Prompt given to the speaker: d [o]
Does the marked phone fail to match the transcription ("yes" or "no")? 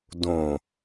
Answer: yes